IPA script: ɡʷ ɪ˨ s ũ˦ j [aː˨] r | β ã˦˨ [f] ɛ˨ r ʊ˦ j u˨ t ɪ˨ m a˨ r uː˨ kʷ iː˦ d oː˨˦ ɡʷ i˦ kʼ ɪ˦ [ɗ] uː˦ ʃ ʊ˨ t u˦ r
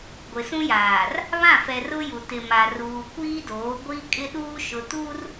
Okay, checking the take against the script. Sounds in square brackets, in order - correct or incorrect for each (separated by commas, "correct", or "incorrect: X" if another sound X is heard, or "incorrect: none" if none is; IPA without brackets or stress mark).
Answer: correct, correct, correct